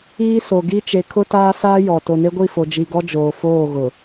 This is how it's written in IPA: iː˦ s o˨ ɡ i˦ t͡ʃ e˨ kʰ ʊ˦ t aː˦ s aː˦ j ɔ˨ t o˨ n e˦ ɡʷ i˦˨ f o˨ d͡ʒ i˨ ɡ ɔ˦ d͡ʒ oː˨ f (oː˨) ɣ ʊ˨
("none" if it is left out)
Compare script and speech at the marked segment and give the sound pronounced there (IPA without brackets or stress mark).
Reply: oː˦˨